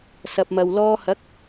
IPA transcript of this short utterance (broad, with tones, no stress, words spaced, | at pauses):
sɐ˧p̚mɐ˧wlɔː˥ hɐ˨˥k̚